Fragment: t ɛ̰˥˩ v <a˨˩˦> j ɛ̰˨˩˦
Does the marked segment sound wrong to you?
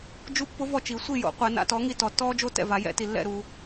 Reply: no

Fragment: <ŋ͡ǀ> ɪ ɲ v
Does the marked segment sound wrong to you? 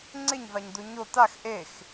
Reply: no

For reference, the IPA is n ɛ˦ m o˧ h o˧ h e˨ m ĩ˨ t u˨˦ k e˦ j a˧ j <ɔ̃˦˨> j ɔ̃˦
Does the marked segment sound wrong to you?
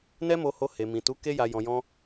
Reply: yes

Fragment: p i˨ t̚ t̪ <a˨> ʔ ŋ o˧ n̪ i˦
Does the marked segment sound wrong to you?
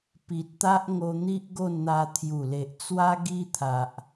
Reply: yes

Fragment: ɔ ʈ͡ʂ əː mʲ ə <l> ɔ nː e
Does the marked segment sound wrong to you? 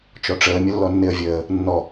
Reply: yes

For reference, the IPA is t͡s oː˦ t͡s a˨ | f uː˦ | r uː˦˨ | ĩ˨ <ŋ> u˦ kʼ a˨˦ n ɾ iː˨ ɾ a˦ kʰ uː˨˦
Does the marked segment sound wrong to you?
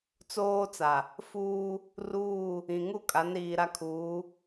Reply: no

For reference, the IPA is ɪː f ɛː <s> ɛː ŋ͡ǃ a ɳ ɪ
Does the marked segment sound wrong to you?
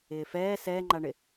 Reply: no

